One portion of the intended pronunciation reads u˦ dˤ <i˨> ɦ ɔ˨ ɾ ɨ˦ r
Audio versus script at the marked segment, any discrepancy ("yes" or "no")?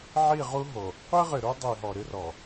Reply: no